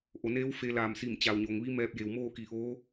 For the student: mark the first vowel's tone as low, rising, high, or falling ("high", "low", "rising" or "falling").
low